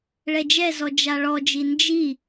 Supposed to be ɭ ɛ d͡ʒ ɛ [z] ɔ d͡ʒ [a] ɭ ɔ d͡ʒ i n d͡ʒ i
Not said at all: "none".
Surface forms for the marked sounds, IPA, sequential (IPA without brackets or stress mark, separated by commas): z, a